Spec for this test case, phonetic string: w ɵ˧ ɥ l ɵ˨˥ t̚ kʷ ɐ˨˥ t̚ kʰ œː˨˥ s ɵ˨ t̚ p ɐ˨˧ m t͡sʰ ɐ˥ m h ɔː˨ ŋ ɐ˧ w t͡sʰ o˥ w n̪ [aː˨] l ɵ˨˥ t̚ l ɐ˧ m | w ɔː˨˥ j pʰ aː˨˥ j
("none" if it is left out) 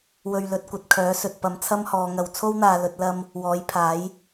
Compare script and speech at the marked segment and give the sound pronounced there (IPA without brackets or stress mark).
aː˨